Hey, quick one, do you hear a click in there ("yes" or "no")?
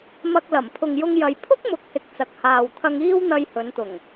no